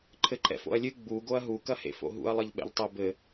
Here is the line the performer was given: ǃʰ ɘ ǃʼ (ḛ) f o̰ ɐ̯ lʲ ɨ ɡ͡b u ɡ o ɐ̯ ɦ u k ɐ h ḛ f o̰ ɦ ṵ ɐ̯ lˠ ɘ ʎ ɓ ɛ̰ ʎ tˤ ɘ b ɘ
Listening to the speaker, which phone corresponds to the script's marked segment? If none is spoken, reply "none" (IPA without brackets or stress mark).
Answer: ɛ̰